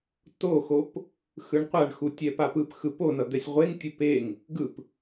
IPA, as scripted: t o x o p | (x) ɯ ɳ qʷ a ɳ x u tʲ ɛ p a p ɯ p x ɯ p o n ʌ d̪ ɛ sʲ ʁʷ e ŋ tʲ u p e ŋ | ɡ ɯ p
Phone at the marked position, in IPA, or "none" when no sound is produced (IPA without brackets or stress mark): x